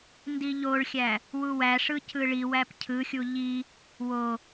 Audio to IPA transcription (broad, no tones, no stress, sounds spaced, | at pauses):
n d i ʎ o ɭ xʲ æ | w u w æ ʂ ɯ c ɯ ɭ i w æ p cʰ ɯ xʲ u ʎ i | w o